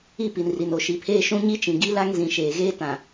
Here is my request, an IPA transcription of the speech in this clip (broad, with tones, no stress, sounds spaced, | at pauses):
i˦˨ p i˨ n r i˨ n o˨ ʃ i˨ pʰ eː˦ ʃ ũ˦ ɲ i˦ t͡ʃ ĩ˨ ɡ i˦ l a˦ ŋ z ĩ˨ ʃ eː˨ ɣ eː˦ t ã˨